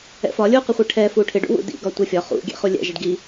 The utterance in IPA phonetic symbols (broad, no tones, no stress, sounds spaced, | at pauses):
ɛ̰ f ɒ lʲ u q ɪ χʷ i ʈʰ ɛ f u ʈʰ ɪ ɖ ṵ w ṵ d ḭ ɡ ɒ tʷ ɛ fʲ ɒ χ ṵ ɡʲ ɛ̰ χ u lʲ ɛ̰ ʒ ɛ ɖ ɡ i